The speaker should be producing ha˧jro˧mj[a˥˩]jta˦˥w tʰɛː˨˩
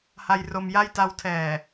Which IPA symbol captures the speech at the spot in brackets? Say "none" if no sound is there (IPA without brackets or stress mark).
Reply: a˥˩